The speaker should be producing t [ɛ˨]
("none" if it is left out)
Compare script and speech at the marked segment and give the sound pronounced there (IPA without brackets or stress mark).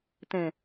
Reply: ɛ̃˨